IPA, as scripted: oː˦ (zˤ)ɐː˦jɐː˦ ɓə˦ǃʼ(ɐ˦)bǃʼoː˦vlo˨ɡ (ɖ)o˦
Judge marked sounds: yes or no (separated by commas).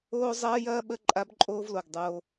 yes, no, no